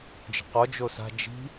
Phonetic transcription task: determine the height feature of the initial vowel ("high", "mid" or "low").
mid